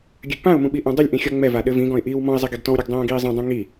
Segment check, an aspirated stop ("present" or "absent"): absent